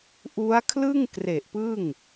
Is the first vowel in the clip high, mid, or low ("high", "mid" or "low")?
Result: high